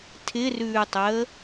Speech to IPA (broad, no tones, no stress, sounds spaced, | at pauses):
tʰ ɪ r ʉː tˤ əː